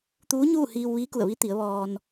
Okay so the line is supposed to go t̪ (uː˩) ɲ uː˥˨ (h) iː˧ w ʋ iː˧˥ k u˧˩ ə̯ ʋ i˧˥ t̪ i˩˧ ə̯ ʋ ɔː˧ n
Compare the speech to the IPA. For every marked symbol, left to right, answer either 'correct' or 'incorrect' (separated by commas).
incorrect, correct